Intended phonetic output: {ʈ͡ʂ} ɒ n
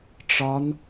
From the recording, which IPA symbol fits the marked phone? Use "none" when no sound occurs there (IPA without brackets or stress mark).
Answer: ʈ͡ʂ